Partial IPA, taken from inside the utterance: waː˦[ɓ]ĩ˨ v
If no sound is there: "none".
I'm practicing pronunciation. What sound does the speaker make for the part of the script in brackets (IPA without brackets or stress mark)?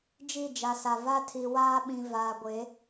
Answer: ɓ